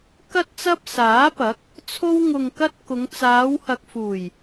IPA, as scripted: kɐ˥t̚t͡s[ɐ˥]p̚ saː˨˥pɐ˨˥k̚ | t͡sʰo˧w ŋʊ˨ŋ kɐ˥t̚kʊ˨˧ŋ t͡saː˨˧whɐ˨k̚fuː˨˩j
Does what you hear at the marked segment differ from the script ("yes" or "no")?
no